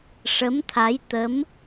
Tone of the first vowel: rising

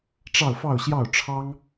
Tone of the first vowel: falling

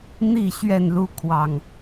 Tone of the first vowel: falling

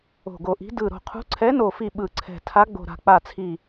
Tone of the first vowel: low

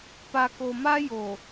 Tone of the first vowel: low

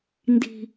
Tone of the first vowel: high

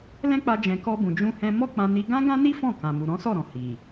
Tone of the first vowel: high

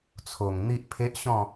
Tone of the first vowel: low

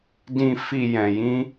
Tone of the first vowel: low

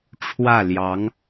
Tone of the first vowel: falling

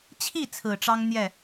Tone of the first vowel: falling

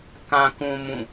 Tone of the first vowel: low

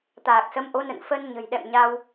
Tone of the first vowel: low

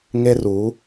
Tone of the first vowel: high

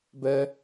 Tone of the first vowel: high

